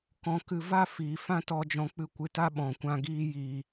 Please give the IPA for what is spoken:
k ɔ̃˧ k ɨ˧ v a˦˨ f iː˨ f ã˦ t ɔ˧ d͡ʒ ɔ̃˧ k͡p ɨ˧ kʷ ɨ˧ t a˦ ɓ ɔ̃˨ kʷ ã˧ ɡ iː˦ j iː˧

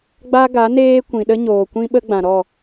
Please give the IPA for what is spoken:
ɡ͡b a˦ ɡ a˨˦ n eː˦ kʷ ĩ˨ ɗ ə˦ ɲ oː˨ kʷ ĩ˦ ɓ ə˦ ɡ͡b ã˨ ɾ ɔ˦˨

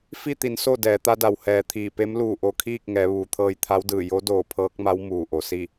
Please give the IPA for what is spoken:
f i˥˨ t̪ i˩˧ n s o˥˨ d ɛː˩˧ t̪ a˧˥ d a˩ w h ɛː˩ t̪ʰ iː˧˩ p e˧˥ m l uː˧˩ ʔ o˧˩ kʰ iː˥˨ k̚ ŋ ɛː˩˧ ʋ uː˩˧ t̪ʰ ɤː˧ j t̪ʰ a˧˥ w d ɯː˧˩ j o˧˥ d oː˧˩ pʰ ɤː˧˥ k̚ m a˧˥ w m uː˧˩ ʔ o˩ s i˥˨

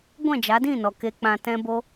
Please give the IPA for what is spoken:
ɡʷ ɛ̃˦˨ d͡ʒ a˨˦ d ĩ˦˨ n ɔ˨ k e˧ k͡p ã˧ t ɛ̃˧ b o˧

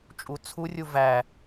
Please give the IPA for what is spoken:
t͡ʃʼ u t͡sʰ u rʲ u v æ

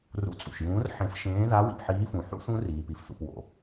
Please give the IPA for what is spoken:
r ṵ˨˦ t͡sʼ ṵ˩ ʃ j ũː˨˦ r ħ ẽ˨˦ f ʃ ẽː˨˦ ð a˨˦ w ḭ˩ p ħ iː˨˦ f ũ˩ ħ ṵ˨˦ θ ũ˨˦ r iː˩ p i˩ f θ ṵ˩ p w o̰˩

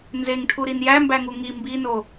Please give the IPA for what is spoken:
n z e ŋ ʈʰ u ɾ i n j æ m b æ ŋ u ŋ i m b i n o

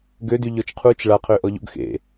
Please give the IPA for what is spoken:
ɡ ø d y ʎ ɔ t͡ʃ qʰ u t͡ʃ ɭ a qʰ ø ʔ ɔ ʎ o̰ ɡ x ḛ

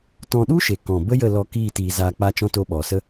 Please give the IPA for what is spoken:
t ɔ̃˧ ɗ u˦ ʃ e˨ k ɔ̃˨ b ə˦ j ə˦˨ l ɔ˧ k iː˦˨ t iː˧ z aː˧ k͡p a˦ t͡ʃ ɔ̃˦ t o˧ ɓ ɔ˨ s ə˦

